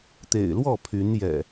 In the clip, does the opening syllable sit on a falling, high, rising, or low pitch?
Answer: low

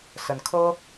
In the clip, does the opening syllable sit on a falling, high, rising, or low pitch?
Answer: rising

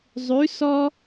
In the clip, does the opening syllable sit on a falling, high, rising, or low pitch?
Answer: rising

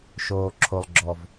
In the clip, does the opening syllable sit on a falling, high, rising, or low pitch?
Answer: low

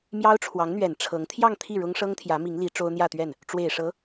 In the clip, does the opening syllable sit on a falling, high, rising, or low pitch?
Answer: high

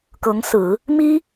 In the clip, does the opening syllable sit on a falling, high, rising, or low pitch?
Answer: rising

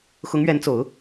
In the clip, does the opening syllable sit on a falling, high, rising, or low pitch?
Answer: rising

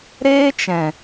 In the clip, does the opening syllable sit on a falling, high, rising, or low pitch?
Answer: high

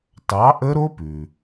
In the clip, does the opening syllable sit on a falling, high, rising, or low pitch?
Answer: rising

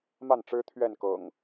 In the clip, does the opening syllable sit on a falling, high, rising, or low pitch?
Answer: falling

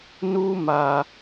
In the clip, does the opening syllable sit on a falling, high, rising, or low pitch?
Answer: high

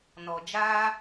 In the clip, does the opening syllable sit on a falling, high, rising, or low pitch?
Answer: low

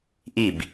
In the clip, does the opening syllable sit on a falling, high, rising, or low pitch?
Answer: falling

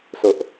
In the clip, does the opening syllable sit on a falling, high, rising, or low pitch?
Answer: low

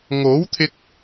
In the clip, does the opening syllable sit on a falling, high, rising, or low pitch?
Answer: rising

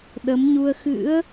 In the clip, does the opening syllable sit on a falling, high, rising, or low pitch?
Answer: rising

